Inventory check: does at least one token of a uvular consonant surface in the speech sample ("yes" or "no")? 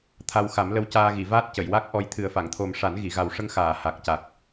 no